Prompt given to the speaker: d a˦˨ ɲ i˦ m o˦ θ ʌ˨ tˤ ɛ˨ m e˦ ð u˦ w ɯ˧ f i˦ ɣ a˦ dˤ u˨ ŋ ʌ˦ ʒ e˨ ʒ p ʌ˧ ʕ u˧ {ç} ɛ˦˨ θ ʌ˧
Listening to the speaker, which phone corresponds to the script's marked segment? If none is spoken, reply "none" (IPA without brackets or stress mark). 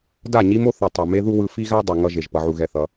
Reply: ɣ